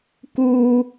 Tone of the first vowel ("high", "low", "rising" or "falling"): high